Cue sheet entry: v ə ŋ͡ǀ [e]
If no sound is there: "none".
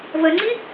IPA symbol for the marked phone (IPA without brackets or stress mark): i